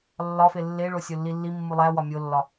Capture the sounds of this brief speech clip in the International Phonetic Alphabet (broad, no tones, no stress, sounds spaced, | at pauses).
lː ɒ f e lː e ɭ o sʲ o lː i lː i mː u lˠ æ w ɒ mʲ o lː ɒ